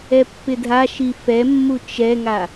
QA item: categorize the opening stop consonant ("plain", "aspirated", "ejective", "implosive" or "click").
plain